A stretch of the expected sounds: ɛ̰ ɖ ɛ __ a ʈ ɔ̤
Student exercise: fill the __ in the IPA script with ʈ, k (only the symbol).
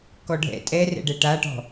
ʈ